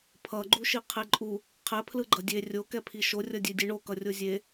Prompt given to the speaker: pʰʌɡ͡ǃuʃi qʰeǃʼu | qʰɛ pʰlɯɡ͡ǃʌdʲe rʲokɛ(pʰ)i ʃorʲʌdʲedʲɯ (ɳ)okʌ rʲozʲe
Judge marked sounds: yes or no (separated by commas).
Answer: yes, yes